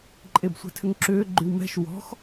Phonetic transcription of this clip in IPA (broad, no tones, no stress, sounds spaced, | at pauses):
ǃʼ e b sʷ ɛ̤ tʰ ʏ ŋ ǁ ʏː ɡ͡ǃ y w m ɛ̤ ʃ w ɔ̤ x